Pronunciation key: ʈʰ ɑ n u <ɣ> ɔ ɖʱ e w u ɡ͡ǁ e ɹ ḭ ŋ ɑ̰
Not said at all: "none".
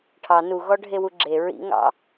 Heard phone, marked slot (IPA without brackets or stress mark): ɣ